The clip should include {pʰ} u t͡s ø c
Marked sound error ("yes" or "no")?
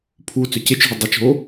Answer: no